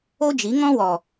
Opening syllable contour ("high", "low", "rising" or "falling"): high